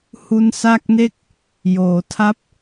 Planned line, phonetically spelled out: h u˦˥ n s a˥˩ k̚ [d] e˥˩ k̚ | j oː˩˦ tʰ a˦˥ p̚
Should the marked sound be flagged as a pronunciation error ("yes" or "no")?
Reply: yes